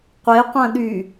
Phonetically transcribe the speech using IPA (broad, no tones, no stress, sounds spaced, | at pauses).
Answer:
qʷ e qʷ ɐ̃ ɗ y